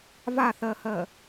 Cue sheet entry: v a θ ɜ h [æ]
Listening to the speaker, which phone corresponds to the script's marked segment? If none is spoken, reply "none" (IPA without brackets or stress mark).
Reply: ɜ